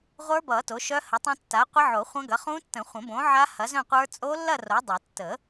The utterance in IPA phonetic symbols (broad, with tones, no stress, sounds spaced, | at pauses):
ʁʷ ə˞˦˥ b ʌ˨˩˦ t o˨˥ ʃ œ˦˥ h ə˨˥ tˤ õ˦˥ tː a˨˥ qʷ ə˦˥ ʕ o˨˩˦ χʷ ɐ̃˦˥ ɡ ɐ˨˥ χ ũ˦˥ tː ə̃˨˩˦ χʷ ə̃˨˩˦ b õ˨˥ ʕ a˦˥ h ɐ˨˥ z œ̃˥˧ qʷ ə˞˦˥ t͡sʼ o˦˥ lː ɐ˥˧ r o˨˥ dˤ o˨˩˦ tː ə˨˩˦